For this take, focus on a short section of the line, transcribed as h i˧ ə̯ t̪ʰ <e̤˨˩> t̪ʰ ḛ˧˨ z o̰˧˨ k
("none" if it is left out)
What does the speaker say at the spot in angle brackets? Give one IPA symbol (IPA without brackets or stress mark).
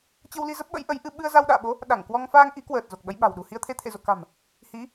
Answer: e˧